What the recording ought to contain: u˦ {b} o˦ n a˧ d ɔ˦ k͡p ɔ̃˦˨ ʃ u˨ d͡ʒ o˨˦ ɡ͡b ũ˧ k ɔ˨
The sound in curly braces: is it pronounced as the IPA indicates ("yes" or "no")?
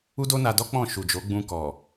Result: no